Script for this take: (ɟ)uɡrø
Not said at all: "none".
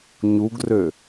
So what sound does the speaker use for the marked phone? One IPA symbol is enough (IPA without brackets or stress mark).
ɲ